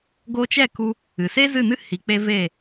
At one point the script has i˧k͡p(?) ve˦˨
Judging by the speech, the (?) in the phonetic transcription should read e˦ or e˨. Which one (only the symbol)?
e˦